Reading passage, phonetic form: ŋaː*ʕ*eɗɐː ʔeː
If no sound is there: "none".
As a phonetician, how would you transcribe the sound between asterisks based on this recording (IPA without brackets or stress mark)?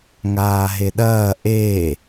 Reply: ɦ